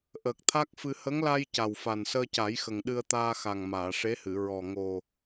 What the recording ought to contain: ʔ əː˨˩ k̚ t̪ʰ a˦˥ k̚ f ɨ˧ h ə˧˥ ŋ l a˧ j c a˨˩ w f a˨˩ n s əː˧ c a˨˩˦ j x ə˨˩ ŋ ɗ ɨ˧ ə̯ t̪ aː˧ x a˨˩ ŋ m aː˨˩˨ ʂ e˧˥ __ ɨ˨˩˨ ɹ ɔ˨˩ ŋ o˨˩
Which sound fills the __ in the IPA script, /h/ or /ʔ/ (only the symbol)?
h